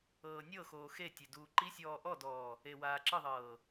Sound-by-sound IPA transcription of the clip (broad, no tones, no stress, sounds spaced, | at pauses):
ɤː nʲ ɤ x oː x e tʲ e d uː ǃ i sʲ ɔː ʔ ɔ d ɔː | e w aː ǁ ɯ ðˤ ɤː